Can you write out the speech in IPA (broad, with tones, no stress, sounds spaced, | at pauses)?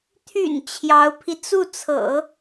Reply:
t̪ʰ y̰˨˩ n t͡ɕʰ j ɑ˧˥ ʊ̯ pʰ i˧ t͡s u˥˩ t͡sʰ ɤ̰˨˩˦